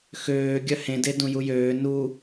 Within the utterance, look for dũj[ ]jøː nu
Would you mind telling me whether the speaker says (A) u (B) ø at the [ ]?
A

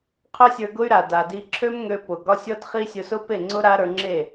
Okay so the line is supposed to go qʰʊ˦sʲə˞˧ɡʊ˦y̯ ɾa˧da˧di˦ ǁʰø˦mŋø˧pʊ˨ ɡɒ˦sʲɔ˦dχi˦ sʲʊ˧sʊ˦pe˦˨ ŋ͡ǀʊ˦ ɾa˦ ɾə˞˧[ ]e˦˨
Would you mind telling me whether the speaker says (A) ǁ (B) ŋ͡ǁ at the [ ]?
B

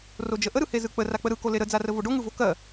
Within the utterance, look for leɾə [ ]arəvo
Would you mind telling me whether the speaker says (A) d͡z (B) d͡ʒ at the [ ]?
A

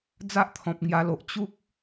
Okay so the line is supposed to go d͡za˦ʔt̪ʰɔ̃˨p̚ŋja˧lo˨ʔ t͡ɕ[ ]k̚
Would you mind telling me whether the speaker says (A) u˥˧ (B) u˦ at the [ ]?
B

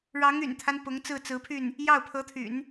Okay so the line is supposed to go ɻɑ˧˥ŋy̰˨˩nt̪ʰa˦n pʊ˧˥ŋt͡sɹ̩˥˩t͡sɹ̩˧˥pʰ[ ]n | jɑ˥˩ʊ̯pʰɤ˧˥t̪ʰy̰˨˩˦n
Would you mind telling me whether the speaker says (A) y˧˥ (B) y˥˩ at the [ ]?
B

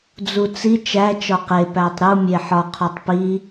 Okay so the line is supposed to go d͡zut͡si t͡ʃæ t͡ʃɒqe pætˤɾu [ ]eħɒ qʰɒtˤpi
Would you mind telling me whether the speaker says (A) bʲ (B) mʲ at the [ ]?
B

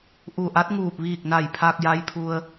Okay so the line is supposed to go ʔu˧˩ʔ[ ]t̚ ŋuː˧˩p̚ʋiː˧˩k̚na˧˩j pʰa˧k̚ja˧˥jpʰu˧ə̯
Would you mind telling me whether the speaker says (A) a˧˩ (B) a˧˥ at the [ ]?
B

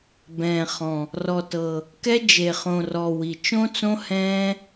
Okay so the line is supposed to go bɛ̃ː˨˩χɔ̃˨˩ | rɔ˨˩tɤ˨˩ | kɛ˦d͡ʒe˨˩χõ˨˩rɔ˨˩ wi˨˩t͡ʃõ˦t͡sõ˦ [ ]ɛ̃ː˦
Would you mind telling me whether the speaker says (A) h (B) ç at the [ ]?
A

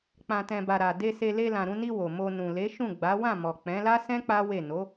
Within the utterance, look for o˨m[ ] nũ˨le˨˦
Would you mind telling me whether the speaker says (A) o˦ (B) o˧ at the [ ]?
B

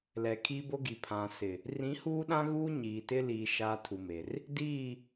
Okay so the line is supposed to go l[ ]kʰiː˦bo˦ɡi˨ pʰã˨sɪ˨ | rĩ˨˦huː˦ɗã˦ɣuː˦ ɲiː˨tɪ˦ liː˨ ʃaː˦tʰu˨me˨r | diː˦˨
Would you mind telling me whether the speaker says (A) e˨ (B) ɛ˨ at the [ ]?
B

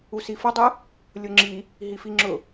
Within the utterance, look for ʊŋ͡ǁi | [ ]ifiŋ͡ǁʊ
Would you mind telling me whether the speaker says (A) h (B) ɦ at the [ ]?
B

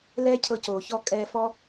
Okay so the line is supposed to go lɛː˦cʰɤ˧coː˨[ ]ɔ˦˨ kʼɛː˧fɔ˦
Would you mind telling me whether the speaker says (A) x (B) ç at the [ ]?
B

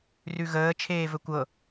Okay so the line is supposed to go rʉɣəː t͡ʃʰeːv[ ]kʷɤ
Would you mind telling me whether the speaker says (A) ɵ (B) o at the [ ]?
A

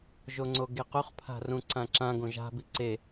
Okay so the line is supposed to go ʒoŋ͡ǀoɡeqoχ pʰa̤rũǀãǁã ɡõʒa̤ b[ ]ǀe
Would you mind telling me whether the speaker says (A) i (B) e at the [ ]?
A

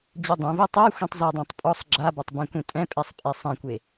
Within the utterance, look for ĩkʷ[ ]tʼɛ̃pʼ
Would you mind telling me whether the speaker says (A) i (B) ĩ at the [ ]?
B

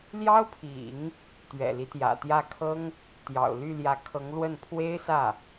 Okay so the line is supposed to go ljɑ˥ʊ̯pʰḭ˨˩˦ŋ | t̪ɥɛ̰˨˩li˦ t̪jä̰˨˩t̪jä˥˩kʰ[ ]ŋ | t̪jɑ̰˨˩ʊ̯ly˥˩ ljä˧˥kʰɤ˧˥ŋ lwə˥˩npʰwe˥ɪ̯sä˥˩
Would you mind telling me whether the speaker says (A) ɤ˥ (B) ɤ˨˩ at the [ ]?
A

